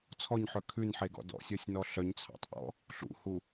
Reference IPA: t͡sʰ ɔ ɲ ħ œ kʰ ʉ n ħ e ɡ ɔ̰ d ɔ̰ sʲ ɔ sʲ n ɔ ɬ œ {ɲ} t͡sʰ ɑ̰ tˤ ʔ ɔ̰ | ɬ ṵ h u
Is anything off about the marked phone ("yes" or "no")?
no